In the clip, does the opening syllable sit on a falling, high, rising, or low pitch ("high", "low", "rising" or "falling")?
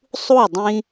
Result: falling